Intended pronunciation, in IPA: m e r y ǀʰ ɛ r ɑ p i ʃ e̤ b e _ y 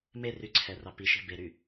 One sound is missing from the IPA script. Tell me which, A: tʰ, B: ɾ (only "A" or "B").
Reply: B